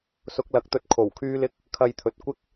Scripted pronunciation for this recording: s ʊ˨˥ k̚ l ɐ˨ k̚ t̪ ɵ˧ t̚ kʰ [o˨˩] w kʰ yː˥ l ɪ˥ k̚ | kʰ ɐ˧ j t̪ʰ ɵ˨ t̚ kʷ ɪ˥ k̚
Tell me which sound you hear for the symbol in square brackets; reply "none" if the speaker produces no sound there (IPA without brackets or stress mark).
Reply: o˨˩